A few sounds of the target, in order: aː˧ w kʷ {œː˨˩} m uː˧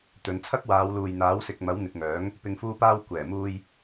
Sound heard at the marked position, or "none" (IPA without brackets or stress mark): ɛː˨˩